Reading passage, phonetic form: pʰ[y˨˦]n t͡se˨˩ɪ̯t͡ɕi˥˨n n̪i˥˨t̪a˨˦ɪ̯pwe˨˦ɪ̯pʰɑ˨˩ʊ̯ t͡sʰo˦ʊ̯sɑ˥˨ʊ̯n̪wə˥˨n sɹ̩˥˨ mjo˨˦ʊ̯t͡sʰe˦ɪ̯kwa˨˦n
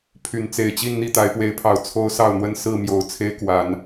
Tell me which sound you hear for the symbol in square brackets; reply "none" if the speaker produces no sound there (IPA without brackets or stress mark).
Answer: y˨˦